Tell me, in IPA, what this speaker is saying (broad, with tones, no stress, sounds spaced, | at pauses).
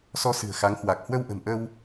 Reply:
s ɔ˧ s ɨ̤˨˩ ə̯ x a˨˦ ŋ h w a˨˩ k̚ h w ə˧ w ʔ ə̤˨˩ m ʔ ə˧ w